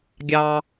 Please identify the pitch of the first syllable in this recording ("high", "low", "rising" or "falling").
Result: high